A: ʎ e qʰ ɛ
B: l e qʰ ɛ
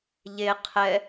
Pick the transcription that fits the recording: A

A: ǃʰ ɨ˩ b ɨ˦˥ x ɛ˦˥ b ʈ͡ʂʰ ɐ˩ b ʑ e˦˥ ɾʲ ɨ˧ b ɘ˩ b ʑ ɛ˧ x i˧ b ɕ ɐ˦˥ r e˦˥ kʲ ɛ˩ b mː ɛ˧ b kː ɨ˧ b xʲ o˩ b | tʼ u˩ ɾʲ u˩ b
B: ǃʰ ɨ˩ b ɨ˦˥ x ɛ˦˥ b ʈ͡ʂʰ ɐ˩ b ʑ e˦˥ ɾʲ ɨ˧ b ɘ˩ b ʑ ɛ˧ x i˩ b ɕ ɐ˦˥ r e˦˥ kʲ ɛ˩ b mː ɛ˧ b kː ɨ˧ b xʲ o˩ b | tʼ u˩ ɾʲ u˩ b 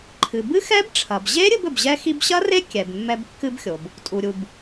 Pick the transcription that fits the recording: A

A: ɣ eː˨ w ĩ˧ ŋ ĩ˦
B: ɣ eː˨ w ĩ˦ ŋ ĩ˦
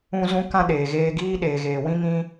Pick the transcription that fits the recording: B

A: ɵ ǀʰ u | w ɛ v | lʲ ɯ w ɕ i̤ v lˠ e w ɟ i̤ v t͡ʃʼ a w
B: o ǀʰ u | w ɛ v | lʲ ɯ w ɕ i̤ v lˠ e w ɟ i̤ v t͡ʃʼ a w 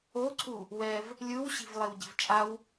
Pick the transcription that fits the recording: B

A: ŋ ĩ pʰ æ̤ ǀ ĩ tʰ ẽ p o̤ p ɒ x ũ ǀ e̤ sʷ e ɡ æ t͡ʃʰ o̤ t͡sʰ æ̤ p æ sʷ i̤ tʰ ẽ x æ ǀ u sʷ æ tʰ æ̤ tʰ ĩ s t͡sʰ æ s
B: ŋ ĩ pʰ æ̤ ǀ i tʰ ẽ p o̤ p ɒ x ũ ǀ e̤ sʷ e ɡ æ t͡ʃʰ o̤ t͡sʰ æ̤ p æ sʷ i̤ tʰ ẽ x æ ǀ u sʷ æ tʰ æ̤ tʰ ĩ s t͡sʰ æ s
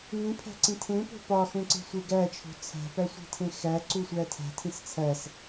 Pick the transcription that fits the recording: A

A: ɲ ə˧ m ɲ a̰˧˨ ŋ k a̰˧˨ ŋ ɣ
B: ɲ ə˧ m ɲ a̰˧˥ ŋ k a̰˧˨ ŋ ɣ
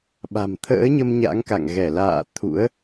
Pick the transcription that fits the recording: B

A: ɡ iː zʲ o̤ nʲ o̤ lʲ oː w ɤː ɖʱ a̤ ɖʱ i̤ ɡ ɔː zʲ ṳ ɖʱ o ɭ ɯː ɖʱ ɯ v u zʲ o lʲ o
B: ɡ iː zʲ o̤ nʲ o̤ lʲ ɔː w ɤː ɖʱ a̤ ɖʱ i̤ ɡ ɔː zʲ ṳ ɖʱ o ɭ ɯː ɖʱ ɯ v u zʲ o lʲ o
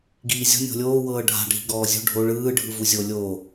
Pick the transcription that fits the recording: A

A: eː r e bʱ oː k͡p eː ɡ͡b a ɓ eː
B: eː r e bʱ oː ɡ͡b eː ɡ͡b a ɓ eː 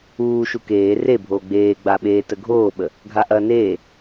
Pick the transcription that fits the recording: B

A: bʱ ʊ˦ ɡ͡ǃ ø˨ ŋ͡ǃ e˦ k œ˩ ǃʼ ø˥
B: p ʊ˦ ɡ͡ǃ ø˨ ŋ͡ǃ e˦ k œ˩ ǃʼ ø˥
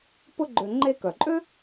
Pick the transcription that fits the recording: B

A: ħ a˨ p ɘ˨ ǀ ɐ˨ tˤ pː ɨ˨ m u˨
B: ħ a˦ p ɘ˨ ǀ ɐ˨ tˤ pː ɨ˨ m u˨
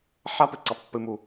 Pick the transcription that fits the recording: B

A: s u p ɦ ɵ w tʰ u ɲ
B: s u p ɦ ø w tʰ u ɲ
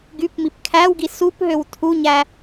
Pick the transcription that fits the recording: B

